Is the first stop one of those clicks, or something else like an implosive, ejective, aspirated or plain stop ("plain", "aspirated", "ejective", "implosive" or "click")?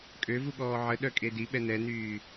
ejective